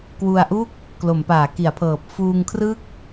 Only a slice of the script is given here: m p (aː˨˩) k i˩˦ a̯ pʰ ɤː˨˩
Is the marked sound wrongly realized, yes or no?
yes